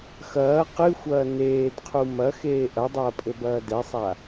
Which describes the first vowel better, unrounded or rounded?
unrounded